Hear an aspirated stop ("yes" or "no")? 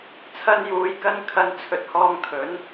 yes